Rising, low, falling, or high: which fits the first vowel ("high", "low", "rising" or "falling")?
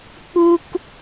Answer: high